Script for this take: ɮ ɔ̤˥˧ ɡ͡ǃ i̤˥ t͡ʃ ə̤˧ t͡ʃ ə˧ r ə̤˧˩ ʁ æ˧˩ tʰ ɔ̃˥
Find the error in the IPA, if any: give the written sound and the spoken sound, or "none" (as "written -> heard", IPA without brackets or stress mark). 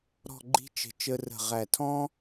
ɮ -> ɾ